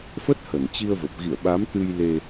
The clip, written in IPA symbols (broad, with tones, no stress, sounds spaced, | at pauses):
f ə˦˥ t̚ h ə˧˩ n t͡ɕ i˧ ə̯ v ə˨˩ p̚ ɣ ḭ˧˨ ə̯ ɓ a˨˦ m t̪ ɨ˧ j l e˧